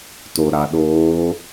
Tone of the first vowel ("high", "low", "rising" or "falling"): low